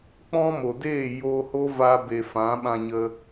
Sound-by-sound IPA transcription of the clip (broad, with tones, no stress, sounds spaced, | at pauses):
k͡p ɔ̃˦ m o˨ d eː˦˨ j oː˧ h o˦ v a˧ b e˨ f ã˨˦ ɓ ã˧ ɲ ə˧